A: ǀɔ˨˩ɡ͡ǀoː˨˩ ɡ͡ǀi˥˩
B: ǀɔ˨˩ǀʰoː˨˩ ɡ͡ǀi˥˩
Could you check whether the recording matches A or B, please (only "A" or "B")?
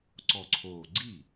B